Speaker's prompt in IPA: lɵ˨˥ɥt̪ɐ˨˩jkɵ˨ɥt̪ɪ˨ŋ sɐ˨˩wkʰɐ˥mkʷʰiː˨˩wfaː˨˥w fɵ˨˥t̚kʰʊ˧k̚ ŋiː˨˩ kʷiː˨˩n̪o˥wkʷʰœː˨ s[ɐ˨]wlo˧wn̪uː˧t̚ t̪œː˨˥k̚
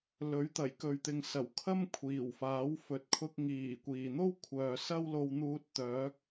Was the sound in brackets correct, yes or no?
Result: no